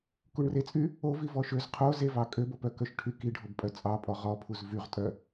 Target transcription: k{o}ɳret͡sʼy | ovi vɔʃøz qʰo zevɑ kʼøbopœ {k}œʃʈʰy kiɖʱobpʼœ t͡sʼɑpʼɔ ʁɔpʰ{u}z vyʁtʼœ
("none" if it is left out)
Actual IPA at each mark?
u, k, u

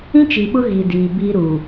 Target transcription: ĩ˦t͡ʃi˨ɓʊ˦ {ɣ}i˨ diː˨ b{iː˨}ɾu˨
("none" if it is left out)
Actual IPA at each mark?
ɣ, iː˦

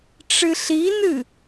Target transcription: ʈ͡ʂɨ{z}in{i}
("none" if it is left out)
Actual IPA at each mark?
ɬ, ɨ

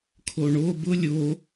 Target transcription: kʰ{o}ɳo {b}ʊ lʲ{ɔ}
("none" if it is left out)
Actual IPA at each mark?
o, b, o

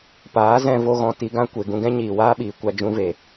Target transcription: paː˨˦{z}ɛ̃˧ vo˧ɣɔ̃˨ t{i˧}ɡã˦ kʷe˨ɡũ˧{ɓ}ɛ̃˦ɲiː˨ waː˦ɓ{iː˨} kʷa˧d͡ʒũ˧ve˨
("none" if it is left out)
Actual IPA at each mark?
z, i˧, ɡ, iː˨

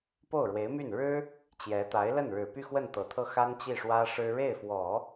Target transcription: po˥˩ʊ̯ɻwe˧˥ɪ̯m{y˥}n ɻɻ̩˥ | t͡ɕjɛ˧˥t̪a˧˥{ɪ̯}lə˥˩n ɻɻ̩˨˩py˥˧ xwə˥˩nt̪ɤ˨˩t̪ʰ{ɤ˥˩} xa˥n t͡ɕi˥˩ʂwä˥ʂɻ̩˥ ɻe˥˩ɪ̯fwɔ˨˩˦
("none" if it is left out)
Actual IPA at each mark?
y˥˩, ɪ̯, ɤ˥˩

